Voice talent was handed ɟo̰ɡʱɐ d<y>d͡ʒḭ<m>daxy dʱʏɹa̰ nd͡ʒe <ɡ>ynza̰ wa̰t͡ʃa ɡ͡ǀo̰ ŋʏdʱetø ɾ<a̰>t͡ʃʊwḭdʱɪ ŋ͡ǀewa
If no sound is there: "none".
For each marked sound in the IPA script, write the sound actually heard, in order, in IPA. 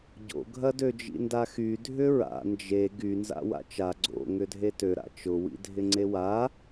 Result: ø, n, ɡ, a̰

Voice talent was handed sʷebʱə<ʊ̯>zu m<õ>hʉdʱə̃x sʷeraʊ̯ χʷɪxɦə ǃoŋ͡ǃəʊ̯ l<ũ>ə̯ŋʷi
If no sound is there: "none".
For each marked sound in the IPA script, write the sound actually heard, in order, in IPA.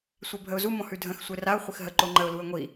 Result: ʊ̯, õ, u

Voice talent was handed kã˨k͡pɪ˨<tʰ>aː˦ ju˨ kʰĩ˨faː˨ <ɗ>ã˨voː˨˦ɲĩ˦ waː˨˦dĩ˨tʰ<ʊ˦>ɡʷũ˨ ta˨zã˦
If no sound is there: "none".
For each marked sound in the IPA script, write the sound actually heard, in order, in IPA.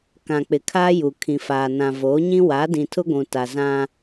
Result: kʰ, n, ʊ˦

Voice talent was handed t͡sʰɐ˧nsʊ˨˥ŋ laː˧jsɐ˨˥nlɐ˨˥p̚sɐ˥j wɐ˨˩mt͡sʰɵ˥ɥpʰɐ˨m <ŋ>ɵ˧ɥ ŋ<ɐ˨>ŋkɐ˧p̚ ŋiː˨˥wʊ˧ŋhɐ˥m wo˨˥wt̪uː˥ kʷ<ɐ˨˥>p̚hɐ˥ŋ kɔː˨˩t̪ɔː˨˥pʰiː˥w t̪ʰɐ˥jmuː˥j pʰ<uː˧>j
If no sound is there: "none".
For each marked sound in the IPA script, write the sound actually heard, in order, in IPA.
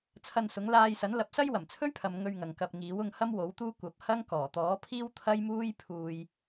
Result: ŋ, ɐ˨, ɐ˨˥, uː˧

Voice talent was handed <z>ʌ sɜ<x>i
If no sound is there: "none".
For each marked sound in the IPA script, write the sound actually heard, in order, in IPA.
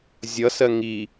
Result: zʲ, ŋ

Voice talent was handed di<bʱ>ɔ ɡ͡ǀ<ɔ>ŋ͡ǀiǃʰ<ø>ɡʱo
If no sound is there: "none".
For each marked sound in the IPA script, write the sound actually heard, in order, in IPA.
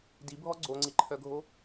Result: bʱ, o, œ

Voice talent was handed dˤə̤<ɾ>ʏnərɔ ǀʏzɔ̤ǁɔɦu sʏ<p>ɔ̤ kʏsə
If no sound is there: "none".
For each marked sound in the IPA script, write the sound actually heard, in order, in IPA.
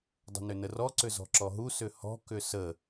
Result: n, h

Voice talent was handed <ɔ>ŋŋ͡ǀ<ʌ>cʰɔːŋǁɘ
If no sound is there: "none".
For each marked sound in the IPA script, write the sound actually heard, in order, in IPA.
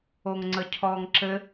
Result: o, ə

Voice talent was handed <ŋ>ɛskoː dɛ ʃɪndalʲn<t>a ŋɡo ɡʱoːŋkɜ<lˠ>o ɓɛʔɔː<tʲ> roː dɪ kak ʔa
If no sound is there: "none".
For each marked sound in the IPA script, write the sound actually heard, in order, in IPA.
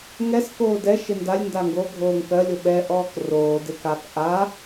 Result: ŋ, d, lʲ, k

